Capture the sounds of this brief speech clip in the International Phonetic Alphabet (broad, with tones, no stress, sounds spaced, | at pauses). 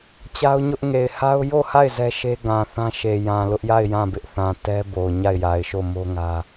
t͡ɕ a˦ ʊ̯ ɲ ʊ˦ ʔ ŋ e˨ ɪ̯ h a˦ ʊ̯ j o˦˨ h a˦˨ ɪ̯ z ɛ˦ ʃ e˦ ɡ ã˨ θ ã˦ ʃ e˨ j ã˨ l ʊ˦ ʔ j a˦˨ ɪ̯ j ã˦˨ b ɪ˦ ʔ θ ã˨ t ɛ˦ b o˨ ʊ̯ ɲ a˦˨ ɪ̯ j a˨ ɪ̯ ʃ o˦˨ m o˦ ŋ ä˦